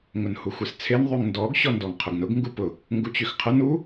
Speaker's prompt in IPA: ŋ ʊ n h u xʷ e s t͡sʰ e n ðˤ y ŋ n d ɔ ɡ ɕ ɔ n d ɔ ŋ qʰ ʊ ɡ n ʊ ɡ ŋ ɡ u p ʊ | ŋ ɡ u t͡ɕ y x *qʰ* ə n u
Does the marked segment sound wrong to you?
no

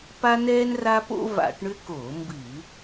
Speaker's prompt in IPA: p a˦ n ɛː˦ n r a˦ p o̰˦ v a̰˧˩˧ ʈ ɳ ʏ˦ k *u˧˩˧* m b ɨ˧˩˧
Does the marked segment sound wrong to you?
yes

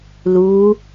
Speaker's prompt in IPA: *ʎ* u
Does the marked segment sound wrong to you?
yes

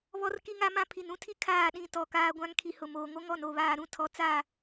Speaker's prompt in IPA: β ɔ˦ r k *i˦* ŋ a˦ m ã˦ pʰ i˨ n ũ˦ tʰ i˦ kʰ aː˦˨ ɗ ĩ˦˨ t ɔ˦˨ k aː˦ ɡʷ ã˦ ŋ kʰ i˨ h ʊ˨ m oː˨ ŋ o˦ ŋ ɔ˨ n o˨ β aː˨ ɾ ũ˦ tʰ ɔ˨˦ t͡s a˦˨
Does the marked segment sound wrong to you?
no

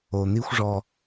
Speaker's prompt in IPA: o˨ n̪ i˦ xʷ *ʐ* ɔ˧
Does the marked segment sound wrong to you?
no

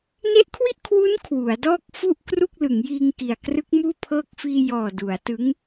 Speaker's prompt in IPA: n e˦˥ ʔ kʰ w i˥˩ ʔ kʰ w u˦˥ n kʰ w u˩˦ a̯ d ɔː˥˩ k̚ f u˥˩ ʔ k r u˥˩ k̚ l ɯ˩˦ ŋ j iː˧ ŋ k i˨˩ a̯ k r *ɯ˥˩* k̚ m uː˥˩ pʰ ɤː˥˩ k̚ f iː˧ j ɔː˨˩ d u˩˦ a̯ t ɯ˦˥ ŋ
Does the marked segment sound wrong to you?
yes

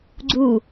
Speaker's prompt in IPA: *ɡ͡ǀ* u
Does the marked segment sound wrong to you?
no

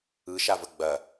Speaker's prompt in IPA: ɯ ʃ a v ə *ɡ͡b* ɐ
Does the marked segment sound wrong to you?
no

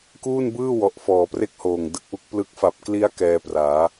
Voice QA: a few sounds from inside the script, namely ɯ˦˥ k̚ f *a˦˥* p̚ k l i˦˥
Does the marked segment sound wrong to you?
yes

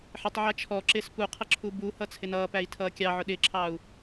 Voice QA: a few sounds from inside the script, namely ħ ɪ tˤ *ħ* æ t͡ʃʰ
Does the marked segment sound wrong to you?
yes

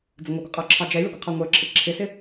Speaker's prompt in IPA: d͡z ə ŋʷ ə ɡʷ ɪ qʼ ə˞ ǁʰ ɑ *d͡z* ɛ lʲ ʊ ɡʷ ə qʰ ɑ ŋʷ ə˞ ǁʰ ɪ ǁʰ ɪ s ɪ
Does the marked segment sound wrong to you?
yes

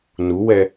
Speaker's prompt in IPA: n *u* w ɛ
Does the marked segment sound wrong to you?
no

